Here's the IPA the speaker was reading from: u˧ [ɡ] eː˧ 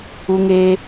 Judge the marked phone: incorrect: ŋ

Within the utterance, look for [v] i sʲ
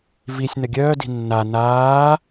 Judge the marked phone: correct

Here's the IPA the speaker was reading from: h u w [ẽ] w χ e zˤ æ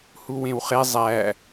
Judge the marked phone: correct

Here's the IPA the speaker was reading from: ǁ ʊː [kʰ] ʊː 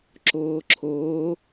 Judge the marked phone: incorrect: ǁʰ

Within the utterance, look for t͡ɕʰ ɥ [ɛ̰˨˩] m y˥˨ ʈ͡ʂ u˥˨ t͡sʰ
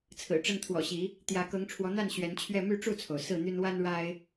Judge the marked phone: incorrect: ɛ˥˨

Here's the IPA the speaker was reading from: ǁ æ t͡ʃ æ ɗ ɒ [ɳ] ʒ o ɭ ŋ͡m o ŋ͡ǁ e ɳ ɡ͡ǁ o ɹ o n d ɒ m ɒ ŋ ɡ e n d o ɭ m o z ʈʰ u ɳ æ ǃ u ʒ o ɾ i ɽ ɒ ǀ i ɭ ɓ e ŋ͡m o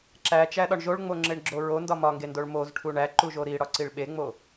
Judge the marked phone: correct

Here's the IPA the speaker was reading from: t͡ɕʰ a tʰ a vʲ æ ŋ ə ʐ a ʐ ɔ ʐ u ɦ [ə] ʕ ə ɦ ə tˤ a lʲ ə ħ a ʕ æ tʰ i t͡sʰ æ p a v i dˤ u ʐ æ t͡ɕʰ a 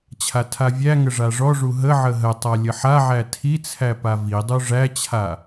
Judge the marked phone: correct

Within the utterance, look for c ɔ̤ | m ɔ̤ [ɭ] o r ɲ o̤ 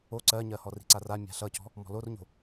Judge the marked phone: incorrect: l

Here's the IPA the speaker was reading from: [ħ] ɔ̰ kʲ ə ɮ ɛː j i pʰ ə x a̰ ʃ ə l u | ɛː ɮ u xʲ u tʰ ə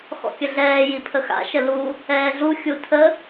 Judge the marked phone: incorrect: x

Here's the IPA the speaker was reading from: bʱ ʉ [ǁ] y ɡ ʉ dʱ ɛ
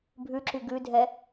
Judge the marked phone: correct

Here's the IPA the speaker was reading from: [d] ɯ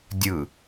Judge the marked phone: incorrect: dʲ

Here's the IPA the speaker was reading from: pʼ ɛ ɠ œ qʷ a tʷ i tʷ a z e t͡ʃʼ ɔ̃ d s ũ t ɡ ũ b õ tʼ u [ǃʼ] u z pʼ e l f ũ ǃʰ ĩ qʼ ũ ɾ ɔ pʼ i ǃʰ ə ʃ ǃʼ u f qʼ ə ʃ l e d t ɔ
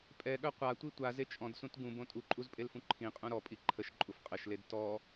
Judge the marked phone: correct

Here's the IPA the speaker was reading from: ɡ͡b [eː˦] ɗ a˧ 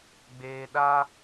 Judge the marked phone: incorrect: eː˨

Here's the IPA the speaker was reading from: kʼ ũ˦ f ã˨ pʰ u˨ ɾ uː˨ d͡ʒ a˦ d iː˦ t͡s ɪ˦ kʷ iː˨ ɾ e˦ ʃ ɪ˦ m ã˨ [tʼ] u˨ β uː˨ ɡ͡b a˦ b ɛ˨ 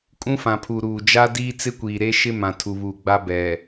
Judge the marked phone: incorrect: tʰ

